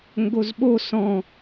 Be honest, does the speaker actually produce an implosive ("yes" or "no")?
yes